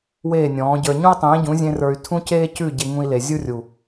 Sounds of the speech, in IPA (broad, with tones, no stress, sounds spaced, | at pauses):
w eː˦˨ nʲ ɔ̃ː˨˦ ɟ ə˞˧ ɲ ũ˦ i̯ tˤ ẽː˨˦ ɟ ũ˨˦ zʲ ẽ˧ r ə˞˧ y̯ tʰ ũ˦ c eː˦ c ʉ˦˨ ɟ e˧ ŋ ũ˧ i̯ l e˨ zʲ u˦ rʲ u˨